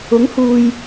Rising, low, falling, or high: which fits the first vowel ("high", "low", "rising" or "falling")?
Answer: rising